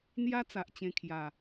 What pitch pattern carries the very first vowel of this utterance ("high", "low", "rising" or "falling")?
high